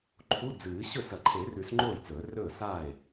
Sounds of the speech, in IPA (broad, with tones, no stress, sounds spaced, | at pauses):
ǃʰ u˧˥˧ d͡z ɨː˨˩˦ ɕ ɵ˥˩ s ɐ˨˩˦ ǃʰ e˨˩˦ r ʉ˨˩˦ s ŋ͡ǃ oː˥˩ j t͡s ɵː˨˩˦ r ɵː˥˩ s aː˥˩ e̯